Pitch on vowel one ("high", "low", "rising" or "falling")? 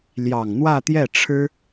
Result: low